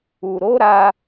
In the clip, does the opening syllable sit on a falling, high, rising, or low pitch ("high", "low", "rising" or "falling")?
low